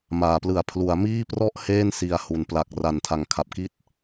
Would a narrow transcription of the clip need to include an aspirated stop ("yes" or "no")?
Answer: yes